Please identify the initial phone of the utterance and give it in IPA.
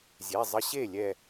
zʲ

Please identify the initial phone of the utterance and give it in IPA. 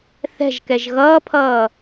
θ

